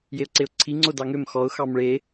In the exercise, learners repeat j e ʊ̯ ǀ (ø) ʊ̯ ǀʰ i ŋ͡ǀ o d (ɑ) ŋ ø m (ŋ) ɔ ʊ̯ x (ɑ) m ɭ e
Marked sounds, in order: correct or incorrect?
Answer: incorrect: e, correct, incorrect: x, correct

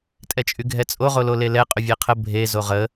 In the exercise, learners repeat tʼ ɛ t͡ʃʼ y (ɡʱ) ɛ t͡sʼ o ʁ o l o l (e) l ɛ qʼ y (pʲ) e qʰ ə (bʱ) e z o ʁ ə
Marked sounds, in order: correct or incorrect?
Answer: correct, correct, incorrect: vʲ, correct

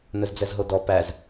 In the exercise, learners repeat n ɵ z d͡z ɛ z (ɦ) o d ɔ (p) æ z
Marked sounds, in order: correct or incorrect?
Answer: correct, correct

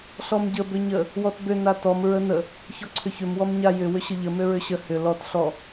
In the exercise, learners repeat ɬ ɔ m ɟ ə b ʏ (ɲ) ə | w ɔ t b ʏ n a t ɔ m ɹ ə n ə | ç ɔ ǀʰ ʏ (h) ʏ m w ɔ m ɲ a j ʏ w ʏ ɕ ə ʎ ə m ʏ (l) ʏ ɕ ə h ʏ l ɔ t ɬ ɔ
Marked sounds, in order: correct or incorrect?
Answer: correct, incorrect: ç, incorrect: ɹ

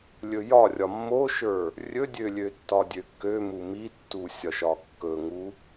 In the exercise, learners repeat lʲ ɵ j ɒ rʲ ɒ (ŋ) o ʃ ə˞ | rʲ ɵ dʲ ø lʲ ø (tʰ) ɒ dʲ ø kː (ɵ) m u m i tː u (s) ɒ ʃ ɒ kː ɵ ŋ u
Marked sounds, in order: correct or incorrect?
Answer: incorrect: mː, incorrect: tː, incorrect: ø, incorrect: sʲ

